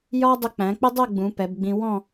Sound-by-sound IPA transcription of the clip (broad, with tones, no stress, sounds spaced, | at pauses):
j ɒ˥ dˤ ʊ˧ k͡p æ̃˩˧ k͡p ɪ˥ dˤ ɛ˥˧ ɡ͡b ũ˩˧ p ɛ˩˧ b ɡ͡b ĩ˧ w ɔ̃˥˧